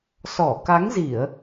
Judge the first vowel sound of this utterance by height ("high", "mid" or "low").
mid